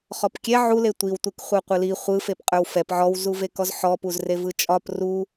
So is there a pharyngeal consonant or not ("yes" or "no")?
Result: yes